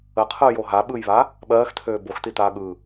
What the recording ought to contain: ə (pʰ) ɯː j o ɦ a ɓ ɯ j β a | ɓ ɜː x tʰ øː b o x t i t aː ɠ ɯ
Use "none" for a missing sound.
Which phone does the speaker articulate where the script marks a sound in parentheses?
qʰ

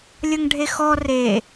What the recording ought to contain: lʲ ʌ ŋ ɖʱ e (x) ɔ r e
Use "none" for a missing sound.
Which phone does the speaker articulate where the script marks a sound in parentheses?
x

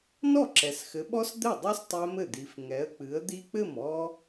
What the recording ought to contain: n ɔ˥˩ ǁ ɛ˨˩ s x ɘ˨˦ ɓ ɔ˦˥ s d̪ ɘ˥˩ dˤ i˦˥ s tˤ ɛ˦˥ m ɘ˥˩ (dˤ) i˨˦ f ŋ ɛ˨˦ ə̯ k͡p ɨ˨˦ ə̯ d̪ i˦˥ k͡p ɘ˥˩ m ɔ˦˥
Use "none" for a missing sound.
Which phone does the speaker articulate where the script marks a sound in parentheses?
d̪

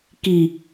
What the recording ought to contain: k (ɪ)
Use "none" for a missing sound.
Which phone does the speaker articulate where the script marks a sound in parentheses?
i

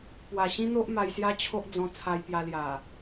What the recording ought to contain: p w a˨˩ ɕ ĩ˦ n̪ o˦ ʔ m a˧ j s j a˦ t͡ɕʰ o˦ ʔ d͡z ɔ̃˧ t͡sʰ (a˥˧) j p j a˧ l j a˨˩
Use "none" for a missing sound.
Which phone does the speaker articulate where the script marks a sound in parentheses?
a˧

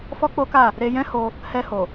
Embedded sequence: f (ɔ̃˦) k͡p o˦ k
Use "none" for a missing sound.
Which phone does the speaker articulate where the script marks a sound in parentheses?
ɔ˦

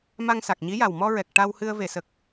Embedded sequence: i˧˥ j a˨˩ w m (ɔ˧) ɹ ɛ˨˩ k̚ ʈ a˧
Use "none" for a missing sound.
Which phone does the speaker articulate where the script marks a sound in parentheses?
ɔ˧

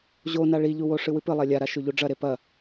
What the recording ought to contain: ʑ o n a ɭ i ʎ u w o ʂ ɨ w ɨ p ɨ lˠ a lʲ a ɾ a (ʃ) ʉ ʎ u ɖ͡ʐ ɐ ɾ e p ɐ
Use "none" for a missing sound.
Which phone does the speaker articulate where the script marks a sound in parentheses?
ʃ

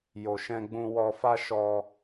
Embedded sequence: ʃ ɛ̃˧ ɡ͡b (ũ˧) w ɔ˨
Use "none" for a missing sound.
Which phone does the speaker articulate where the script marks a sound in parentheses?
ũ˧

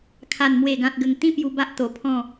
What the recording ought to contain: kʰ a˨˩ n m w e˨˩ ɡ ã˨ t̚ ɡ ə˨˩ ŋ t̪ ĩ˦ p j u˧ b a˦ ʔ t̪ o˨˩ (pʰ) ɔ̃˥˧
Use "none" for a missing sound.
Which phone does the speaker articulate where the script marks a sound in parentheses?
pʰ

